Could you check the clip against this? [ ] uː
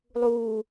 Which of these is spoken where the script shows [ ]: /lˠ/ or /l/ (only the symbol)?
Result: lˠ